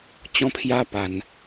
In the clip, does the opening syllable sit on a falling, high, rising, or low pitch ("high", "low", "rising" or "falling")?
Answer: high